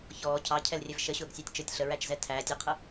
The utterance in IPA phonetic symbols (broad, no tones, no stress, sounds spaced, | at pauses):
ç ɔː cʰ ɑ cʰ ɛ l rʲ ɛ v ʃ ə ɕ ʊː ɡ sʲ æ tʲ t͡ʃ ə˞ tʲ ɬ ə ɹ æ t͡ʃ z ɛ tʰ æː tʲ ʊ qʰ ə